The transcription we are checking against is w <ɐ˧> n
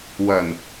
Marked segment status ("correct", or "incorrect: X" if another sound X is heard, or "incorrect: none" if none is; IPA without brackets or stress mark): incorrect: ɐ˨˩